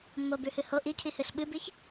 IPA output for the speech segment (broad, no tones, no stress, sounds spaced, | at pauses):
mː o b ʉ h ɨ h o ʔ i cʰ i h ɨ ɬ ɓ ɨ b i ç